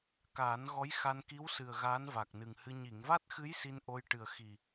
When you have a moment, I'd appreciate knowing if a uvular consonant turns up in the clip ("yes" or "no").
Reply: no